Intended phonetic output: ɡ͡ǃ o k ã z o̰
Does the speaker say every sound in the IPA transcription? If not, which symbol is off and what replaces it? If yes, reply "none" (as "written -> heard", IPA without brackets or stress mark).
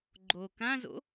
none